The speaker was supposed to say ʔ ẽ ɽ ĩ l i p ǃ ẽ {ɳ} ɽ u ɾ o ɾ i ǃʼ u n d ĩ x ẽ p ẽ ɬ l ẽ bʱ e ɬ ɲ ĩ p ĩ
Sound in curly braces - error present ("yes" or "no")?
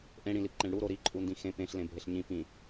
no